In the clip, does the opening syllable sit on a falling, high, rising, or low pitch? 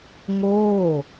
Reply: falling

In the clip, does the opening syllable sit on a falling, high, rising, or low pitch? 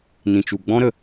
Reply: low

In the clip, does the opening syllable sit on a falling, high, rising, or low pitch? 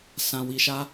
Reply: low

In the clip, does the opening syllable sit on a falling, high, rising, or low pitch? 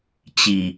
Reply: low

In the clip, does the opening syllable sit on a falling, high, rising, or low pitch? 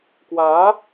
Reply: rising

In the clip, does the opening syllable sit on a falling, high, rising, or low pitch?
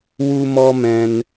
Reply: high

